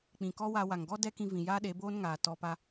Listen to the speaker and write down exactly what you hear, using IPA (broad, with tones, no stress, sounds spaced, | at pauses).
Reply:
k͡p ĩ˨ k ɔ˦ w a˧ w a˨ ŋ ɡ ɔ˦ d ɛ˦ k ĩ˧ v ĩ˨ j aː˦ ɗ e˨˦ b oː˦ n ŋ aː˨ t ɔ˧ p a˧